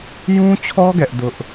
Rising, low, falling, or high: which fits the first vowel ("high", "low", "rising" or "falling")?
high